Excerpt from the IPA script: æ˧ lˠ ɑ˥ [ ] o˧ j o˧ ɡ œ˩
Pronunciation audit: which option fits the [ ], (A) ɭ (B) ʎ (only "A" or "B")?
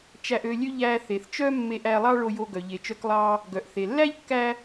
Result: A